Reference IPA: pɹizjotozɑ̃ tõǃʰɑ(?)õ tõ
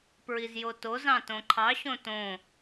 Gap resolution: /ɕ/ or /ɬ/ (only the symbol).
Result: ɕ